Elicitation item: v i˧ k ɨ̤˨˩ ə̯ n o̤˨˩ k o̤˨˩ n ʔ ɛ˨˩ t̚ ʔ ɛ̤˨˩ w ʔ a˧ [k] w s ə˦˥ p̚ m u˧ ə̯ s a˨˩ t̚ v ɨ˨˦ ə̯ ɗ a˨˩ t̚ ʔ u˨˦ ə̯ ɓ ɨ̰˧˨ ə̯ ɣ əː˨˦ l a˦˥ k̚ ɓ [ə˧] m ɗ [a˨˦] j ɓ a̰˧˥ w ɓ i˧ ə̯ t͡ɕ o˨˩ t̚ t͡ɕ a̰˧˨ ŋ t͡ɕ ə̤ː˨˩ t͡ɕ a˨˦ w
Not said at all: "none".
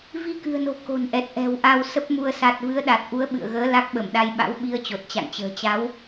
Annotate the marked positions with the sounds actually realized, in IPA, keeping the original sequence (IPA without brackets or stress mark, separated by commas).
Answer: none, ə˧˩, a˧